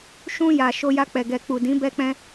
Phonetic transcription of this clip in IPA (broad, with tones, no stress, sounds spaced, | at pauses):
ʃ ũ˧ j a˨ ʃ o˧ j a˧ k͡p ɛ˨ ɡ ɛ˨ k͡p u˨ d ĩ˨˦ b ɛ˦ k͡p ɛ̃˦